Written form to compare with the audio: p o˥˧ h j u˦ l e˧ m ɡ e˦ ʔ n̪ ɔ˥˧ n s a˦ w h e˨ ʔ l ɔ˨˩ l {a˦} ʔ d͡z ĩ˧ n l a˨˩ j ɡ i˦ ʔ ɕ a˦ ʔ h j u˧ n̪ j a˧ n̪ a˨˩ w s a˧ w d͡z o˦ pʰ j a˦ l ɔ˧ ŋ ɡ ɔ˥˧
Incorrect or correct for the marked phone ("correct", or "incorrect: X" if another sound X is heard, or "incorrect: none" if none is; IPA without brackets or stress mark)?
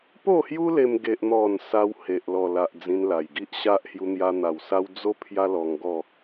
incorrect: a˨